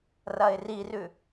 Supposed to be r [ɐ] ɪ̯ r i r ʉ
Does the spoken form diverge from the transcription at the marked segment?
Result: no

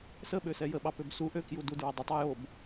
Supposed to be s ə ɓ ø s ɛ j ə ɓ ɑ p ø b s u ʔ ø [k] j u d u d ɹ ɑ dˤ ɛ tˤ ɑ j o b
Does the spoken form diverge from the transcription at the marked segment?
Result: no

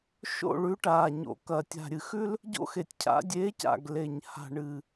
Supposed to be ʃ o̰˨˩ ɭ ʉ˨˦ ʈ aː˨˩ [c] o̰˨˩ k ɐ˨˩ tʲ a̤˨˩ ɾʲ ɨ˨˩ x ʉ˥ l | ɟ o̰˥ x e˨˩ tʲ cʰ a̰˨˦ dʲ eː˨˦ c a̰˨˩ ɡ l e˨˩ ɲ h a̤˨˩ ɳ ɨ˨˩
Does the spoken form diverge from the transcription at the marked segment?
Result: yes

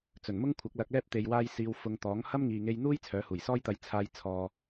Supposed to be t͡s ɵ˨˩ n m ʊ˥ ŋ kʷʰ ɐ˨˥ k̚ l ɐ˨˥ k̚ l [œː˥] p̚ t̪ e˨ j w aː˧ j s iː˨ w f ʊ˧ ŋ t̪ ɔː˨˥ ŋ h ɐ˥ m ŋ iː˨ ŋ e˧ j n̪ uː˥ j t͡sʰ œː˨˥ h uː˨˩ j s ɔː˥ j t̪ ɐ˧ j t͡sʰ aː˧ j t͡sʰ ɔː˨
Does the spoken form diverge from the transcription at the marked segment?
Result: yes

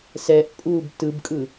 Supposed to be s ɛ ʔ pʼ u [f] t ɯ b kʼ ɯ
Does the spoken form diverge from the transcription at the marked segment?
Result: yes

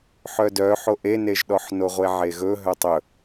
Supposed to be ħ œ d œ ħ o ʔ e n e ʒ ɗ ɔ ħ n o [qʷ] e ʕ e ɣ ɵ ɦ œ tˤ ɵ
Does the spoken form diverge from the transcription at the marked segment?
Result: yes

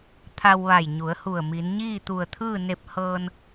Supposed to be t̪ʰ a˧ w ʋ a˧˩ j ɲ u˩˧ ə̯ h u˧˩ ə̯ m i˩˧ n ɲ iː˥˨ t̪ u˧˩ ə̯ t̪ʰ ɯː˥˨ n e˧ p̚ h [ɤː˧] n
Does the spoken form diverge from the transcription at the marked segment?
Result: no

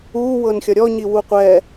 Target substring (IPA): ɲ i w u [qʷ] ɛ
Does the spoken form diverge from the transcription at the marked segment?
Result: no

